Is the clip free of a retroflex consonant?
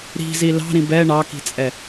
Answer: no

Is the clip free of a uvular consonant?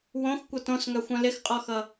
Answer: no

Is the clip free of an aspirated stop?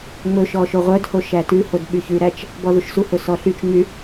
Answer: yes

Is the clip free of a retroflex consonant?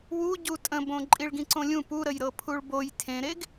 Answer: no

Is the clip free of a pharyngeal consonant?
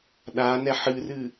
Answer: no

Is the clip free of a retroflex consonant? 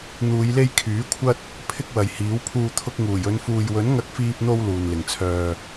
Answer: yes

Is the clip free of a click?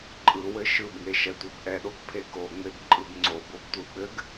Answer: no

